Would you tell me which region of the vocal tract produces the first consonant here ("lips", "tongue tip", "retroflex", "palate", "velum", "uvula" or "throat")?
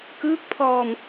velum